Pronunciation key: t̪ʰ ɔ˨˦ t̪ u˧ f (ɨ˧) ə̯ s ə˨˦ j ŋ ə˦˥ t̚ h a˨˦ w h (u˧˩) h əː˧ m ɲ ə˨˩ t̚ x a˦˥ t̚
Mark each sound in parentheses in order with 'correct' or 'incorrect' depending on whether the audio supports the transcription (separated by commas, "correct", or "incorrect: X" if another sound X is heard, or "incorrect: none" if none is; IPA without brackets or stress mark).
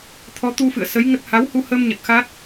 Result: incorrect: ɨ̰˧˨, incorrect: u˧